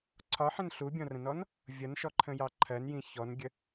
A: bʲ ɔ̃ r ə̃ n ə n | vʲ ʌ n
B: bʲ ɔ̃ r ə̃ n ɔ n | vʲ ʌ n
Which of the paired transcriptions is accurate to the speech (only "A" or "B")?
B